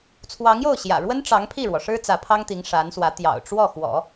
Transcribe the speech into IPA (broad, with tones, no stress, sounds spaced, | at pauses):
t͡sʰ w ɑ˧˥ ŋ j o˥˩ ʊ̯ ɕ j ä̰˨˩ ɻ w ə˥ n ʈ͡ʂ ɑ˧˥ ŋ pʰ i˥˩ ɻ w ɔ˩ ʂ ɻ̩˥ t͡s ä˧˥ pʰ ɑ˥ ŋ t̪ i˧˥ ŋ ʂ a˧˥ n s w ä˧˥ t̪ j ɑ̰˨˩ ʊ̯ ʈ͡ʂ w ɔ˥˩ x w ɔ̰˨˩˦